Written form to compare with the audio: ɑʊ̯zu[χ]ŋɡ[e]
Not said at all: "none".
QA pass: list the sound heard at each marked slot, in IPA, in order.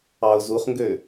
χ, ø

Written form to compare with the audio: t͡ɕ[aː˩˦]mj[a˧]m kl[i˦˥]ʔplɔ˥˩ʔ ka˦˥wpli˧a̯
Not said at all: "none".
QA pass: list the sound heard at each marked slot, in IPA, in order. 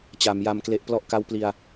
a˩˦, a˧, e˦˥

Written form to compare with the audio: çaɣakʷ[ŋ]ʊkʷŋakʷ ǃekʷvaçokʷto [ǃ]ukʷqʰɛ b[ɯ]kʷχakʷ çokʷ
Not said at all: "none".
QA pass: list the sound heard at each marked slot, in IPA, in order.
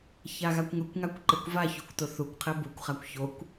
ŋ, θ, u

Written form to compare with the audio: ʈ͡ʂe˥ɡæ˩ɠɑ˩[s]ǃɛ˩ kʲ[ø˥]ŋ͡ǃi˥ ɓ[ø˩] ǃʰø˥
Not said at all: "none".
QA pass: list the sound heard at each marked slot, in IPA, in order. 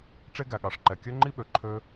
ʂ, ø˥, ø˩

